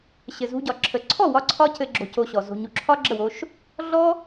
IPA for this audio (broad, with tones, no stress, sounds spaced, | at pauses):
ɕ ɘ˨ z ṳ˧ ɟ ɒ˨ ǁʰ ə˨ ǀʰ ɔ˦˨ w ɒ˧ ǀʰ ɒ˦ c ɘ˧ ɡ͡ǁ o̤˧ c o˧ ɕ ɔ˨ z o̤˨ ɲ u˨ ǁʰ ɒ˦ ɡ͡ǁ ə˦˨ w o˧ ʃ | ɮ ɔ˦